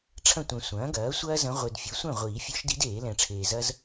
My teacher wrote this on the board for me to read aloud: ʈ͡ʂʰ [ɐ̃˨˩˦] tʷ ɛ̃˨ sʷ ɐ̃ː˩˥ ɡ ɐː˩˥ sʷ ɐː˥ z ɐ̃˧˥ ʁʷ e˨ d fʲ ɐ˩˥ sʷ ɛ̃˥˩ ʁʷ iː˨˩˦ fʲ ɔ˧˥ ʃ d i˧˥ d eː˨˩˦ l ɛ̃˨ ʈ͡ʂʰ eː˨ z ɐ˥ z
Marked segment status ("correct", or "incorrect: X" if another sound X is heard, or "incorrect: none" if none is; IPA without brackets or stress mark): incorrect: ɐ̃˥˩